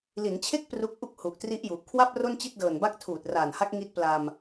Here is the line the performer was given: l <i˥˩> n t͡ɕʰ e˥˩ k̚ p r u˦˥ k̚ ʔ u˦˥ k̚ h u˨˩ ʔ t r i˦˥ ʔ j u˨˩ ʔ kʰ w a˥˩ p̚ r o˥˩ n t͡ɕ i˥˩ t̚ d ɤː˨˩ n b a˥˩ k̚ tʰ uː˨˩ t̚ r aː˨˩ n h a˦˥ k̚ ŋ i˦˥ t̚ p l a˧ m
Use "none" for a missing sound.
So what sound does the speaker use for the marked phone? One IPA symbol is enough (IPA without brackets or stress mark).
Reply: i˩˦